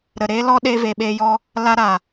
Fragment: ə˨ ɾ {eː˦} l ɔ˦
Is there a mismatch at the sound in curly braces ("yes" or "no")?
no